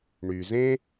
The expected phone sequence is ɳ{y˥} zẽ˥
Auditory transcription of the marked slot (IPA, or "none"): y˩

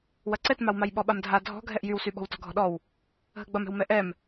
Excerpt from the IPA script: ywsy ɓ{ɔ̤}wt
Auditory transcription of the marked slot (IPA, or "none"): ɔ̤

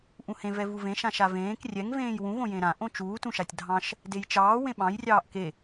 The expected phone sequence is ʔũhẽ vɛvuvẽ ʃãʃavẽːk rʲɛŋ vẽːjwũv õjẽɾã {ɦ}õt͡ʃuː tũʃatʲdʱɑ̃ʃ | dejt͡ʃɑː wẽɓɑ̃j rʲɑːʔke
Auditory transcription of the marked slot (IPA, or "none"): ʔ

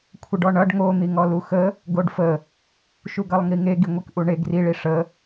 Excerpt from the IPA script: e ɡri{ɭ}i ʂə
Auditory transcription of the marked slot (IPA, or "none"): ɭ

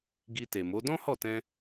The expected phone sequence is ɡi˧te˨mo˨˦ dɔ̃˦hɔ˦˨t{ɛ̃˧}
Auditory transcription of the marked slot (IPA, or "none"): ɛ̃˧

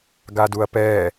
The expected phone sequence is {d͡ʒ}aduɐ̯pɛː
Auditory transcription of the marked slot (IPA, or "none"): ɡ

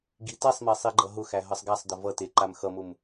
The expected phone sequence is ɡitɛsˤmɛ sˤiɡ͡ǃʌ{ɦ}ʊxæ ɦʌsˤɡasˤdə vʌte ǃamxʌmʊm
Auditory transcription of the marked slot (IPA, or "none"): ɦ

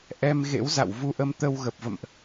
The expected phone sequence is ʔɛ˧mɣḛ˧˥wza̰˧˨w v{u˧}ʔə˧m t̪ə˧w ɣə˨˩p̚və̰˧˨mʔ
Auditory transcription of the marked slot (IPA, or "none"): u˧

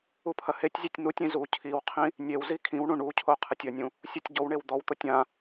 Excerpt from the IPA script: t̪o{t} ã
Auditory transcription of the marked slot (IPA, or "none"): tʲ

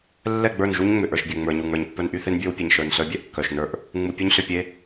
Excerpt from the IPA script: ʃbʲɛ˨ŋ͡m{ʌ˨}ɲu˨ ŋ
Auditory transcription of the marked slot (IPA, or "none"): ə˞˨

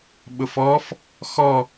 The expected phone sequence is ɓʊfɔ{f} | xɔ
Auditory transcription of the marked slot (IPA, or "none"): f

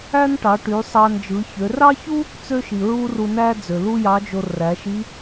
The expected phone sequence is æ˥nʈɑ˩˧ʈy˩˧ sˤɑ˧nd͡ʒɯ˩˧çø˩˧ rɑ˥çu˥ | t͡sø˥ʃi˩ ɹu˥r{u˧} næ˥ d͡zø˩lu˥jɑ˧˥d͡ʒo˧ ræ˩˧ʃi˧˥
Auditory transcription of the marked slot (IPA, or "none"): u˧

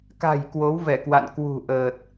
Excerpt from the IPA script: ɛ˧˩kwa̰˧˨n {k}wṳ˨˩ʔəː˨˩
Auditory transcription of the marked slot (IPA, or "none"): k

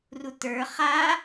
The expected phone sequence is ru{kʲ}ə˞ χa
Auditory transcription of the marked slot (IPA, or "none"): t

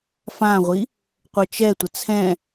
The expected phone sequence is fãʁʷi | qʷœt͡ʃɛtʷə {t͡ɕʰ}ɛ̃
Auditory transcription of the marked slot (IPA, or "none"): t͡sʰ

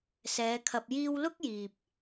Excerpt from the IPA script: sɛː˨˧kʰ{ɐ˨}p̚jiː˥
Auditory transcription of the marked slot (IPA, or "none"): ɐ˧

